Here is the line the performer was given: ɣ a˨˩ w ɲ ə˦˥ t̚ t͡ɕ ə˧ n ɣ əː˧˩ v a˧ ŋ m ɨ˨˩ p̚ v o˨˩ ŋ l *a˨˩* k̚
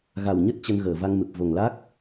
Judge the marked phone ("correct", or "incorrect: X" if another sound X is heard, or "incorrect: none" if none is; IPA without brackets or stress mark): incorrect: a˦˥